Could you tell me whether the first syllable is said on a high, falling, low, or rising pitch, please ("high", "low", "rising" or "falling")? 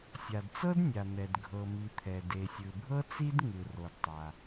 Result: low